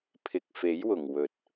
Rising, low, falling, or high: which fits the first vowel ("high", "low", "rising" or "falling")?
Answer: low